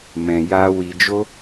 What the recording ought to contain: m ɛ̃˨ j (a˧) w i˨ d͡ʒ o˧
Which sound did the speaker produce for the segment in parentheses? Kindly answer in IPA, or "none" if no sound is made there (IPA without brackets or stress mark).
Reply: a˧